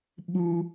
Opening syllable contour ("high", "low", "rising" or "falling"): high